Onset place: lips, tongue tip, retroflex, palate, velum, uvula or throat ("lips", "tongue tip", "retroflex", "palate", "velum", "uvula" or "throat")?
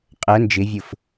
uvula